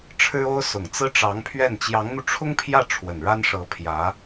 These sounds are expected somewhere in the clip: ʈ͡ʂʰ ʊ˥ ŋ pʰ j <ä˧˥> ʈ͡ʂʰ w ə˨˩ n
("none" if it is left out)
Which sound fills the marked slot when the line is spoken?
ä˥˩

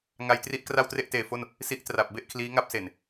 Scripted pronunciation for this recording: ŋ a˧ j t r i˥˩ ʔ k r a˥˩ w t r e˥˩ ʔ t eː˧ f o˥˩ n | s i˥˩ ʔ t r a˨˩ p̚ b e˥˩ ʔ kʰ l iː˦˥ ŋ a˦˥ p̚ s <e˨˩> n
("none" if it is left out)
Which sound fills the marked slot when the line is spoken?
e˨˩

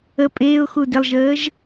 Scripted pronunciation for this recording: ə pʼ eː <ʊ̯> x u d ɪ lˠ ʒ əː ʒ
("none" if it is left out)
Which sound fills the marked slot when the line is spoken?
ʊ̯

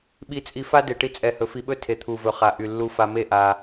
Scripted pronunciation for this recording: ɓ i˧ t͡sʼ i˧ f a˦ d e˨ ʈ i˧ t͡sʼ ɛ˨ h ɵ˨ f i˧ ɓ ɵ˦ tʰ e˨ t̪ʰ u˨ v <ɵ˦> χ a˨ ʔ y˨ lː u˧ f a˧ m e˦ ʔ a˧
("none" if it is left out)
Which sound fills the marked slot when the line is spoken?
ɵ˨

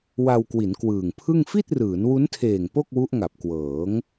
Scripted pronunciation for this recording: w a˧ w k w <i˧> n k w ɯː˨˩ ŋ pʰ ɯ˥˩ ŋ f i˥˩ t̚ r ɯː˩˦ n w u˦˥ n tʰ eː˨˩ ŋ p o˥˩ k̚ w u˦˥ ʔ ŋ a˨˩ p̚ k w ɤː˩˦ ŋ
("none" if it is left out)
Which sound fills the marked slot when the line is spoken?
i˩˦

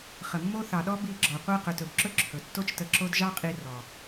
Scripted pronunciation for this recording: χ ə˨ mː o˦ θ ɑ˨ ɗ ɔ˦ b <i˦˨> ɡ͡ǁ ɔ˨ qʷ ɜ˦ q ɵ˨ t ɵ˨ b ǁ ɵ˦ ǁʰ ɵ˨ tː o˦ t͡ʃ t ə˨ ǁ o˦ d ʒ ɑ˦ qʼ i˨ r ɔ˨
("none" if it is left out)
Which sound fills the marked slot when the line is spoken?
i˦˨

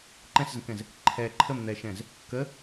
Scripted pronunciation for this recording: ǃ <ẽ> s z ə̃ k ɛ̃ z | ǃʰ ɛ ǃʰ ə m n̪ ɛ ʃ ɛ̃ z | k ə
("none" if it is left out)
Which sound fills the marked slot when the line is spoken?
ɛ̃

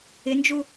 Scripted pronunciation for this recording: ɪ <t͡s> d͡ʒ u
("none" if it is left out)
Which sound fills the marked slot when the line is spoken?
n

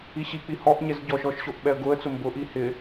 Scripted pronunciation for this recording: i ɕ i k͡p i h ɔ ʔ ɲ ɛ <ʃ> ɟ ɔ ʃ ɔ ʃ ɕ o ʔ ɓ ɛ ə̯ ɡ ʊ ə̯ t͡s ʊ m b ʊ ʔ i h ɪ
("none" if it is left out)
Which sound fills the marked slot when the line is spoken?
z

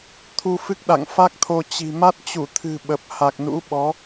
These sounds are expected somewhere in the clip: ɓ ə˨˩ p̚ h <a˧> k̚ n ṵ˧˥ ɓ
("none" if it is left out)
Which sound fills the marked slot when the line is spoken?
a˨˩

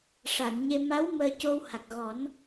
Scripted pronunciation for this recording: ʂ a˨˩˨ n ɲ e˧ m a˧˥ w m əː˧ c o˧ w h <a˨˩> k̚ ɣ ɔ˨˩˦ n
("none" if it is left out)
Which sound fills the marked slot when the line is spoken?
a˨˩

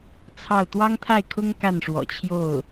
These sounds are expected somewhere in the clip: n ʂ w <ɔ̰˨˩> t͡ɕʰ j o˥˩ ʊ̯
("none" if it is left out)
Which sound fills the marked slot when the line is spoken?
ɔ̰˨˩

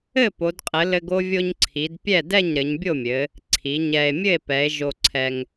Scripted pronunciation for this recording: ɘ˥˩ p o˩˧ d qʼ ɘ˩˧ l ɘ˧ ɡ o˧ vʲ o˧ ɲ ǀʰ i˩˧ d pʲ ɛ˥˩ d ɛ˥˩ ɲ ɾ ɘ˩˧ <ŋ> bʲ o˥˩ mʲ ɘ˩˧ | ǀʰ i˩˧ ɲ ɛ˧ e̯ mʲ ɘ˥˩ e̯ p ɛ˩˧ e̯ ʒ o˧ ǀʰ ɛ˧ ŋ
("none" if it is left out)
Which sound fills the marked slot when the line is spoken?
ɲ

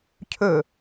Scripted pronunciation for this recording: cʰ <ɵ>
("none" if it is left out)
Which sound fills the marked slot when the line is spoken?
ɵ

